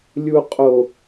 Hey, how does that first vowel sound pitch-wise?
low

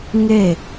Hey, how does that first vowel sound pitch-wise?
falling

